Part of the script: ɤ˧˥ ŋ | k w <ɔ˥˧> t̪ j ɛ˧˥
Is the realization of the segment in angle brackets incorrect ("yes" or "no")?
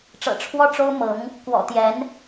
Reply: yes